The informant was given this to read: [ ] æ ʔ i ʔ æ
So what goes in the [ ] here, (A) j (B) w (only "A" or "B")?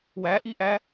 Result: B